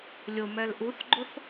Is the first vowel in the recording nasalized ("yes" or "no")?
no